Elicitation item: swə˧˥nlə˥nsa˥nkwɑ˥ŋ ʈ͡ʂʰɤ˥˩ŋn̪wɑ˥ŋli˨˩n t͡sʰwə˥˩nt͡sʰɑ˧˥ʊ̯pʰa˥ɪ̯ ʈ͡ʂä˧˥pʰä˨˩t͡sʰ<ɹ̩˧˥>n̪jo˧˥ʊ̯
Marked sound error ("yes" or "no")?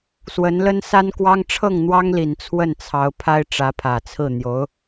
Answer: yes